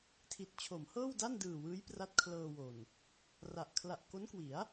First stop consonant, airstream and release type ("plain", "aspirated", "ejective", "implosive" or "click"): aspirated